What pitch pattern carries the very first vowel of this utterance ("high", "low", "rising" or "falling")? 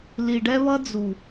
low